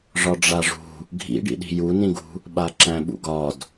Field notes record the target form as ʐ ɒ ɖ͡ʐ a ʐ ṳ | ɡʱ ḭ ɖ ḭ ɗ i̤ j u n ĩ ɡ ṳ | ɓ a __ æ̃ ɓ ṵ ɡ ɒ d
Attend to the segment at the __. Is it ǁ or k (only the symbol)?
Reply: ǁ